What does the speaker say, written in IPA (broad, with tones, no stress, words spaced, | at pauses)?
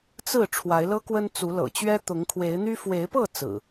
t͡sɹ̩˥˨ ʈ͡ʂʰwa˨˦ɪ̯lɤ˦kwə˦n t͡su˨˦lɤ̰˨˩t͡ɕɥɛ˦ t̪ʊ˨˦ŋkʰwe˨˦ɪ̯n̪y˦ fwe˨˦ɪ̯pɤ˥˨ t͡sɹ̩˨˩